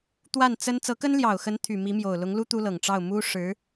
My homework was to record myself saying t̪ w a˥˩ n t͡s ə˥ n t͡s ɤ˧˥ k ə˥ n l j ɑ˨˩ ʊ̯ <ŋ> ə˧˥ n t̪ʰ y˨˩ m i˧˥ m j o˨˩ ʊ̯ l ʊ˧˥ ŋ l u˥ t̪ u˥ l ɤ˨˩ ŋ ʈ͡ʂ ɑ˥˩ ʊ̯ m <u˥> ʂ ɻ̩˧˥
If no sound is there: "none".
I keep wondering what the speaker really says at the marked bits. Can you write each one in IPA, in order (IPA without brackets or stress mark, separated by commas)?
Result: x, u˥